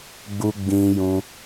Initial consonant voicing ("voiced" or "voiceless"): voiced